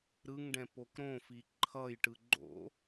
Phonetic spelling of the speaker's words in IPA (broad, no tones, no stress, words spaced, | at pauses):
ɾɯŋɖɛ̃pok ɾõfi ǃʰʌjʈɯ ɡ͡ǃo̰